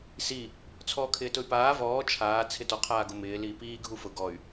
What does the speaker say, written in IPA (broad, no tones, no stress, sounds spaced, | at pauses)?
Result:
s i | t͡sʰ ɔː kʰ ɪː t ʊ y̯ p aː v ɔː t͡ʃʰ aː t͡sʰ ɪ t ɔ qʰ aː ɡ ʊ m ɪː l iː p iː ɡʱ u f ʊ ɡ ɔ y̯